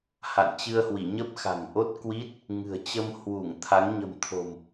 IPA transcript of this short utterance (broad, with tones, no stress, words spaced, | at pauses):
ha̰˧˨n t͡ɕɨ˧ə̯hwi˧˩ɲə˦˥p̚ xa̤˨˩ŋʔo˦˥t̚kwi˦˥t̚ | ŋɨ̤˨˩ə̯t͡ɕə˧m hwu˧˩ŋ t̪ʰa˨˦ŋ ɲə̤˨˩mt̪ʰo̤˨˩m